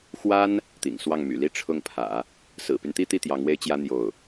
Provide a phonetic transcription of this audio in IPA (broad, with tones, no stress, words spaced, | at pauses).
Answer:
xwa˥n | t̪ḭ˨˩ŋ swɑ˥˩ŋmy̰˨˩li˥ ʈ͡ʂʰʊ˥˩ŋpʰä̰˨˩˦ | sɹ̩˨˩py˦nt̪i˥t̪i˥˩ t̪jɑ˧˥ŋwe˥ɪ̯t͡ɕjä˥ n̪jo˥˩ʊ̯